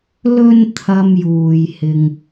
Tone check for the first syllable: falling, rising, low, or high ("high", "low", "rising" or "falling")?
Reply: low